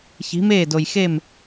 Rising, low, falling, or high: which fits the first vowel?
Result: rising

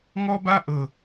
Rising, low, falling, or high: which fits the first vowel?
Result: high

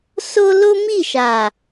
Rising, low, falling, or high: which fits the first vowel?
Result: high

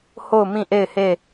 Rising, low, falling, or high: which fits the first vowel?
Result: falling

